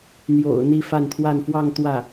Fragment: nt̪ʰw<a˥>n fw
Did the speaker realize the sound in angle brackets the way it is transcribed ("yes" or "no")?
no